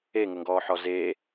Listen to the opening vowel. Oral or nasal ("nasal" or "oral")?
oral